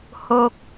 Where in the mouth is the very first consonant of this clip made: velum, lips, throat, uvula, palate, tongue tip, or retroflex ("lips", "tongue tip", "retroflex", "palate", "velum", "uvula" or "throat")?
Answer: throat